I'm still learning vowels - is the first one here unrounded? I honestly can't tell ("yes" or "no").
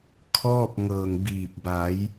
no